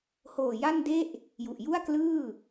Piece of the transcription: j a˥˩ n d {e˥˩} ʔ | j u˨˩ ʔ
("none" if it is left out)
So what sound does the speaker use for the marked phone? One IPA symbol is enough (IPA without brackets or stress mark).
e˥˩